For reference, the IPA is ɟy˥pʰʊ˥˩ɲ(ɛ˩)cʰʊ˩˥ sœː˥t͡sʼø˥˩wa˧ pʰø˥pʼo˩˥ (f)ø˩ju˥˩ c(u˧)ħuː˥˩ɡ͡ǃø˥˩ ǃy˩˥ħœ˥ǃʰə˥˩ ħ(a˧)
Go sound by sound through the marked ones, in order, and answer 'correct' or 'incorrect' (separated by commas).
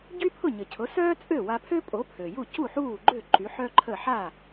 incorrect, incorrect, incorrect, incorrect